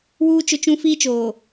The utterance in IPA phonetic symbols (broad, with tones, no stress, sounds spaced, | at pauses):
w uː˦ t͡ʃ ʊ˦ t͡ʃ ũ˦ f iː˦ t͡ʃ oː˨